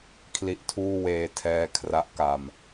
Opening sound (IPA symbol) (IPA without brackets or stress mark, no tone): kʰ